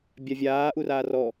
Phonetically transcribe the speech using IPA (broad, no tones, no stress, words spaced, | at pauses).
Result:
bʲavʲaː ʔuraːrɔ